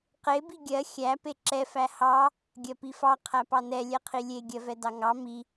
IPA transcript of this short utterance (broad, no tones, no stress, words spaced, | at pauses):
qe biɡʲɜ xʲæ peǁɛ fæhɑ | ɡʲɜpifɑ qʰæpɑnɛ lʲɛqʰilʲe ɡʲɜvɛdɑŋɑ mi